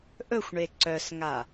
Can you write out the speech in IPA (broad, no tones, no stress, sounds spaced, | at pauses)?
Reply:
ʔ ɵ xʷ ɳ e ǀ œ s ŋ a